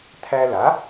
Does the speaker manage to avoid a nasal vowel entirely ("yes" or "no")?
yes